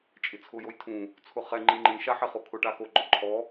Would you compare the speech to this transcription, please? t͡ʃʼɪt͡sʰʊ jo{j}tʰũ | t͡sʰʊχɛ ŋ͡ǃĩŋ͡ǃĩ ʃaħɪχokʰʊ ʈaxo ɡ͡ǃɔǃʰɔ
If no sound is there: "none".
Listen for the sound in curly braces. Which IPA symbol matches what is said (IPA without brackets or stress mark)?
j